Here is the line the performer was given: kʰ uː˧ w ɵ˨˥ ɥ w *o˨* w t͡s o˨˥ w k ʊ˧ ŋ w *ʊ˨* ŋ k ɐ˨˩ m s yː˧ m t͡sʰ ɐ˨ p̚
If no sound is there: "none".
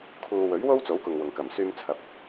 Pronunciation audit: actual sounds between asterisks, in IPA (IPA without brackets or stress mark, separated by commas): o˥, ʊ˨